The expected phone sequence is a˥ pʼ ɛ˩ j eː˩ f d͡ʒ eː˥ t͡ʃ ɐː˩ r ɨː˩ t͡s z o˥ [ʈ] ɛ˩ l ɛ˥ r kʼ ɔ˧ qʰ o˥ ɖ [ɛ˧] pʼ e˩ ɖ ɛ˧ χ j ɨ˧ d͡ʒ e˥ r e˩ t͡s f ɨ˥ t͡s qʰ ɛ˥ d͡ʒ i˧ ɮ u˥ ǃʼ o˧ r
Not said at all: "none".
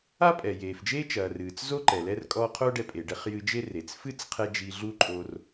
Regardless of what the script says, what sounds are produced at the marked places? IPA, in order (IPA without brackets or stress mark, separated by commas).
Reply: ǃ, ɛ˧